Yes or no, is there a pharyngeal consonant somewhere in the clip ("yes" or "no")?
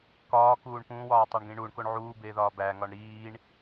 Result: yes